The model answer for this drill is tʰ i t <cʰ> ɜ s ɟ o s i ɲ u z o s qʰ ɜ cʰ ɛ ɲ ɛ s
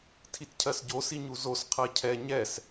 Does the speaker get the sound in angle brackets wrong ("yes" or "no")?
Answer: no